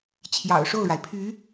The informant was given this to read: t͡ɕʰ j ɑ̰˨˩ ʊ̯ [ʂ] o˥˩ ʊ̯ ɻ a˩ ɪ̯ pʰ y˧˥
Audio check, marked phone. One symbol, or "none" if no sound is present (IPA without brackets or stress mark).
ʂ